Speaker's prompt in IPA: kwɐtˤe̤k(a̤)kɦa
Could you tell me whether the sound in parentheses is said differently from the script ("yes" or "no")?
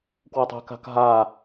no